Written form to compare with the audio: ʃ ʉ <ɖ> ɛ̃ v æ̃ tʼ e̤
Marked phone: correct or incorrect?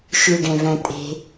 correct